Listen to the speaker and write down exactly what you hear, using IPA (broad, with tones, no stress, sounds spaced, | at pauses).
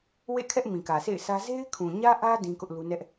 w ḛ˦˨ kʰ ɛ˦ ʔ m ĩ˨ k ä˨ sʰ ḛ˦˨ ɪ̯ sʰ ä˦ z e˦ ɪ̯ kʰ ũ˨ ɲ ä˦ ʔ ä˦ d ĩ˦ k ʊ˦ ʔ l u˦ n ɛ˦ ʔ